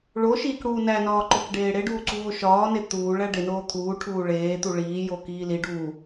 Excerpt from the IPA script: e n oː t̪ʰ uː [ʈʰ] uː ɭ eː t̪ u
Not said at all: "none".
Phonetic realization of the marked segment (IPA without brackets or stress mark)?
ʈʰ